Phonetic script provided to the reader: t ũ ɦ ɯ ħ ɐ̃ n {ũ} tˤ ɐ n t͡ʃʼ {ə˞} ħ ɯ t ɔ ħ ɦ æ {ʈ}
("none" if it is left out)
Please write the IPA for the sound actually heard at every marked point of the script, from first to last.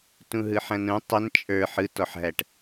ũ, ə˞, ʈ

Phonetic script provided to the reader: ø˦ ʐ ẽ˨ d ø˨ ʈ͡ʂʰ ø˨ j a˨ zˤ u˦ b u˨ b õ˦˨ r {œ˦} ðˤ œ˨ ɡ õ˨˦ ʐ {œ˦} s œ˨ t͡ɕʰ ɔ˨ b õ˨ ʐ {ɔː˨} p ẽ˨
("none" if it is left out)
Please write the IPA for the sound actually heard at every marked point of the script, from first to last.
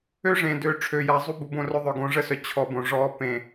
œ˦, ə˦, ɔː˦

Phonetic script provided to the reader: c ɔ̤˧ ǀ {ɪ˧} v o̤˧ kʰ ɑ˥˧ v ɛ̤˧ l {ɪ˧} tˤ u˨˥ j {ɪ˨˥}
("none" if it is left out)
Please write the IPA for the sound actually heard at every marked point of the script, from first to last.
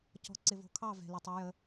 ɪ˧, ɪ˧, ə˨˥

